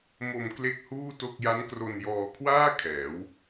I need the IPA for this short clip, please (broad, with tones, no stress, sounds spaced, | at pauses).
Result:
m o˧ m k l e˥˩ k̚ h uː˥˩ t o˥˩ k̚ j a˦˥ n k r o˧ n j ɔː˧ kʰ w aː˥˩ kʰ ɛː˩˦ w